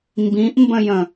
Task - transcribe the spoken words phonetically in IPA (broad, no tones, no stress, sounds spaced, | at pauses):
m b ĩ ʔ m b ə̃ j ə̃